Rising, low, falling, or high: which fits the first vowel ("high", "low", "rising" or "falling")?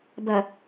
low